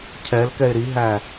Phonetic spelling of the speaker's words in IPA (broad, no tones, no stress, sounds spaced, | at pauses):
cʰ ɛ l k ɛ ɪ̯ ɾ i ɦ æ